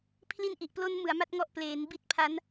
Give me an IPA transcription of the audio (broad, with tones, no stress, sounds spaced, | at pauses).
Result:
pʰ l i˦˥ n ʔ i˨˩ ʔ p l o˦˥ n m ɯ˩˦ a̯ m a˥˩ t̚ ŋ ɔ˦˥ ʔ p l eː˩˦ n b i˦˥ t̚ pʰ a˦˥ n